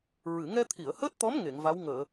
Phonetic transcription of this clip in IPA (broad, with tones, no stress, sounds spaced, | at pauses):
ɹ ɨ˨˩˨ ŋ ɛ˧ t̪ʰ i˨˩˨ ə̯ h əː˦˥ t̚ t̪ ɔ˧˥ m ŋ e˨˩˨ ŋ v a˧˥ w ŋ əː˨˩˨